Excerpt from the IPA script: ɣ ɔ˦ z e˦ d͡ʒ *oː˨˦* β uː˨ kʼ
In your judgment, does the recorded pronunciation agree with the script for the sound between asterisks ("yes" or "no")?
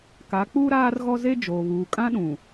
no